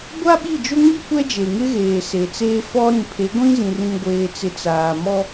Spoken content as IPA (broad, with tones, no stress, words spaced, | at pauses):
ɡʷa˦ ɓi˦˨d͡ʒo˦ŋi˦ kʷɛ˦d͡ʒe˨ŋɪ˦ɣeː˨ se˨t͡seː˦ fɔ˦ ɾĩ˨pʰe˨˦ɡʷĩ˦ zĩ˨rĩ˨ɡʷeː˨t͡sɪ˨ t͡saː˨mɔ˦